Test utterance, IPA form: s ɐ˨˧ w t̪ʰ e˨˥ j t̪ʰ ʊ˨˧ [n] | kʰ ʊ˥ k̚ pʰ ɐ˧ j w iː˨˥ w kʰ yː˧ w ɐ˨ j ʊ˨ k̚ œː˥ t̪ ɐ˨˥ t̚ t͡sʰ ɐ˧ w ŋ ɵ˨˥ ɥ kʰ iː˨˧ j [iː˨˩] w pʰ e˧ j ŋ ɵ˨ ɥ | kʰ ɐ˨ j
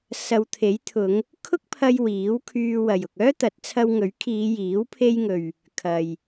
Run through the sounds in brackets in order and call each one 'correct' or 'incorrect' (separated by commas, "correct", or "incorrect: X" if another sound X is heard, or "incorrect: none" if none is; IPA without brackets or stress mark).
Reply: incorrect: ŋ, incorrect: iː˨˥